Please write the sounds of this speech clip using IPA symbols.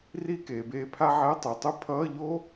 r i˥˧ k eː˩ b eː˧ pʰ a˥ ʕ ɛ˧˥˧ tˤ ɯ˩ tˤ u˥ pʰ ʌː˧˥˧ ʎ oː˥

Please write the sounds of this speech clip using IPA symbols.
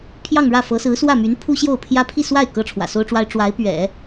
pʰ j ɑ˥˧ ŋ ɻ ä˥˩ f ɤ˧˥ s ɹ̩˧˥ s w ä˥˩ m y˧˥ n pʰ u˥ ɕ j o˥˩ ʊ̯ pʰ j ä˥ pʰ i˥˧ s w a˥˩ ɪ̯ k ɤ˥ ʈ͡ʂʰ w ä̰˨˩ s o˥ ʊ̯ ʈ͡ʂ w a˥ ɪ̯ ʈ͡ʂ w a˧˥ ɪ̯ p ɥ ɛ̰˨˩˦

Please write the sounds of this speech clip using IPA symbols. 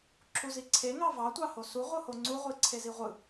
ǁʰ u z i ǀʰ e ŋ ɑ v ɑ tʷ ɑ h o s u ʁʷ ɯ h o ŋ͡ǀ u ʁʷ i ǀʰ e z i ʁʷ ɯ

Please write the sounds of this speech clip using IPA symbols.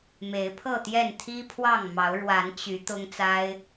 m e˨˦ ɪ̯ pʰ ɤ˥˨ t̪ j ɛ˥˨ n t̪ʰ i˦ pʰ w ɑ˥˨ ŋ m ɑ˨˦ ʊ̯ ɻ w a˨˦ n t͡ɕ y˨˦ t̪ ʊ˦ ŋ t͡s a˦ ɪ̯

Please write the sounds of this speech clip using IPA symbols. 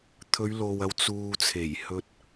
t̪ʰ ɵ˨˧ ɥ l o˨ w ɐ˨˧ w t͡s uː˨ t͡sʰ e˨˩ j h ɵ˧ t̚

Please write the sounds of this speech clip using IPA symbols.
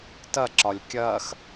t ɐ ǁ ɒ lʲ kʲ ɐː x

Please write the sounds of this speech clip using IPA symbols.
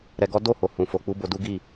ɾ ɛ˧ ɡ ɔ˦ d o˦˨ h o˨ h ũ˨ f o˨ k͡p u˧ b o˧ d u˦ ɡ i˦˨

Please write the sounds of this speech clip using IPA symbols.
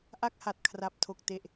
ʔ a˥˩ k̚ h a˨˩ t̚ kʰ r a˨˩ p̚ tʰ o˨˩ k̚ t e˨˩ ʔ

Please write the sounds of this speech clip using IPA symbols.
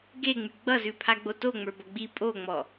ɡ e ŋ͡m y ɡ͡b ʌ z ʉ pʰ a ɡ͡b o t o ŋ͡m ə˞ b ʌ ɡ͡b i pʼ o ŋ͡m ɔ

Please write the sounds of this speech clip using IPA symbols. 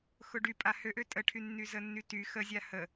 x ʊ ɖ y pʼ a h ø ʔ ø tʼ ə ʈʰ y nː y z ə nː y t y x ə zʲ a h ə

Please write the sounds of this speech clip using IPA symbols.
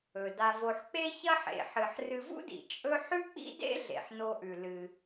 ɵ˩ d a˨ v o˨ ħ k͡p e˦ ç ɐ˥ ħ ḛ˨ ħ ɨ˨ ħ r ɨ˨ v ṵ˥ d ḭ˩ t͡ʃʼ ɵ˥ ħ ʉ˥ k͡p ḭ˥ d ḛ˥ ɮ ḛ˩ ħ n o˨ ʔ ʉ˩ l ɨ˨

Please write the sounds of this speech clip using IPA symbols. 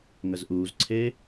ŋ ə z ʔ uː z ǀʰ eː

